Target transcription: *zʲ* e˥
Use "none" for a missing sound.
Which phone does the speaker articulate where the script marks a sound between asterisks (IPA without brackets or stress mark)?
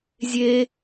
zʲ